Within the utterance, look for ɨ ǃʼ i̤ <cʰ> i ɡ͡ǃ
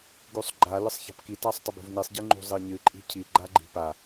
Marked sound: correct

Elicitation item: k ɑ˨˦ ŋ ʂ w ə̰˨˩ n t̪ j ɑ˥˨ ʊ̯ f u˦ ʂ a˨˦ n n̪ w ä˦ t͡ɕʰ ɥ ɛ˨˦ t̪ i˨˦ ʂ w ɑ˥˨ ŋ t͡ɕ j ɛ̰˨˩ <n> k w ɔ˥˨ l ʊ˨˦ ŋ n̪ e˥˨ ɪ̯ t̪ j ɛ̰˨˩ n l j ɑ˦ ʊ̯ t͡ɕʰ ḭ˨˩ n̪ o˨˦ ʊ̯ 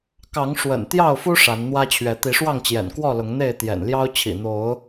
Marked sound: correct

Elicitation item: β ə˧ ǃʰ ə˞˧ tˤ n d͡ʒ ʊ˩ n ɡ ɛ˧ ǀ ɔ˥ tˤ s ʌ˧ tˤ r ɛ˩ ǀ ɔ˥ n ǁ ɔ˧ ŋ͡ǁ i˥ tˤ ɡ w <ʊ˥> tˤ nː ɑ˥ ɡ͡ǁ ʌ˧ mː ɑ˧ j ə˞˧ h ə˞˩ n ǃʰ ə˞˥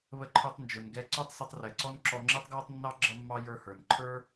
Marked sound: incorrect: ɔ˥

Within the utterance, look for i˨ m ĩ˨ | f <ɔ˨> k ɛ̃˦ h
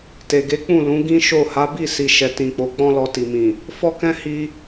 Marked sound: incorrect: ɔ˦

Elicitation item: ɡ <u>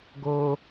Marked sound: incorrect: o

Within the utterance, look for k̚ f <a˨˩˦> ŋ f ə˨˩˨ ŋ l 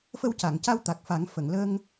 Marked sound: correct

